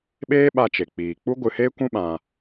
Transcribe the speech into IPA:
ɓ eː˦ ɓ a˧ t͡ʃ e˨ k͡p iː˨ k͡p u˦ ɡʷ ɨ˧ h eː˦ kʷ ũ˦ ɓ ã˧

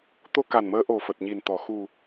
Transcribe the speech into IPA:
t̪ o˧ k a˨˩ n m əː˨˦ ʔ o˨˩ f ə˨˩ t̚ ɲ i˨˩ n t̪ ɔ˨˩ x u˨˩

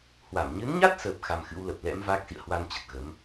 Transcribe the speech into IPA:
h w a˧˩ m ɲ ɨ˨˦ n ɲ a˦˥ t̚ s əː˨˩ p̚ x a˧ m x ɨ̰˧˥ w l ə˨˩ p̚ l ɛ̰˧˥ m v aː˦˥ k̚ s ḭ˧˨ ə̯ h w a˧ n t͡ɕ ə˨˩ t̚ ɣ ə˨˦ m

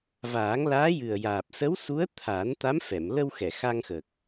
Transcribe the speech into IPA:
v aː˨˩˦ ŋ l aː˧˥ j ɨ˨˩ ə̯ j aː˨˩ p̚ s ə˧˥ w s u˧˥ ə̯ t̪ʰ a˨˩˦ n t̪ a˧˥ m f ɛ˨˩˨ m l ə˧ w x ɛ˨˩˨ x a˧ ŋ x ə˨˩ k̚

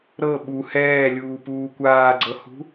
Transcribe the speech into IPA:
ɾ ɤ ɓ u h ɛː lʲ uː p uː kʷ aː ɡ͡ǀ ɤ h ṳ

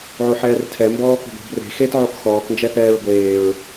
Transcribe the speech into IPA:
ʕ o ħ ɛː r tʰ ɛ m b ɔː k ɔ̤ ɡʷ ɛ̤ b r e̤ x e t ʕ o k x ɔː k n d͡ʒ ɛ θ ɛː ɹ ɡʷ eː ɹ

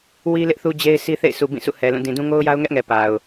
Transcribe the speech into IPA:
w i˦ l ɪ˦ ʔ θ u˦ d͡ʑ e˦ ɪ̯ s i˦ θ ḛ˦˨ ɪ̯ s u˨ b ĩ˦˨ s ṵ˦˨ h ɛ˨ l ũ˦˨ d ĩ˨ d ũ˦ ŋ o˦ ʊ̯ j a˦ ʊ̯ ŋ ɛ˦ ʔ ŋ ɛ˨ p a˨ ʊ̯

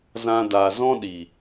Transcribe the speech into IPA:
z ã˧ d a˨ z ɔ̃˦ ɗ i˨

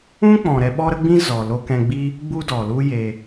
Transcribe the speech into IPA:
ũ˦ k͡p ɔ̃˨ ɾ ɛ˧ ɓ ɔ˦ ɾ ə˦ ɡ͡b ĩ˦ z ɔ˨ l o˧ k ɛ̃˧ ɡ͡b i˦ | ɡ͡b u˦ d ɔ˨ l u˦ j e˧

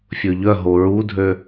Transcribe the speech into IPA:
fʲ ɵ ʎ œ ɦ o ɹ u dʱ ø

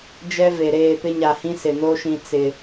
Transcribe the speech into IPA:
d͡ʒ ɛ˦ v e˨ ɾ eː˦˨ p ɪ˦ ɲ a˨ h ĩ˦ s ɪ˨ n o˦ ʃ ĩ˨ t͡s ɪ˨

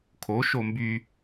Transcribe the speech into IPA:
kʰ o ʃ o m b y

